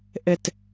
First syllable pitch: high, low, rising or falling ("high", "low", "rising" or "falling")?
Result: falling